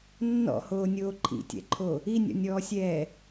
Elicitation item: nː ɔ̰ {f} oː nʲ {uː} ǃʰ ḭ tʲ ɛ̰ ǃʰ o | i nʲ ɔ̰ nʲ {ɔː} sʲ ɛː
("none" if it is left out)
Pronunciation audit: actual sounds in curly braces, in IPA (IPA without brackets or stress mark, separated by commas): h, oː, ɔː